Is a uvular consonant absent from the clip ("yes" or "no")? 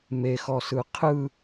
no